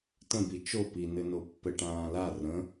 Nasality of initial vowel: nasal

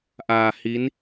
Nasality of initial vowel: oral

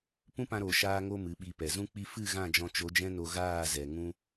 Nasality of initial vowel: nasal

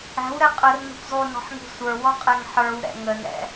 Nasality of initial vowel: oral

